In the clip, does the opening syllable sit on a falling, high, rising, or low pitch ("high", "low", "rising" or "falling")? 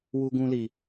high